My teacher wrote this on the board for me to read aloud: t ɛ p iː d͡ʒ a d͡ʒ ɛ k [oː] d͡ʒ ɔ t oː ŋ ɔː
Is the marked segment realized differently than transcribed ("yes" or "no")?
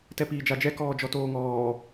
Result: yes